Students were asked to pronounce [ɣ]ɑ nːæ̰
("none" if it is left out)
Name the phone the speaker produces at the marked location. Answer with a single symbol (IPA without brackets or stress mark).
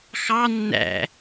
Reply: x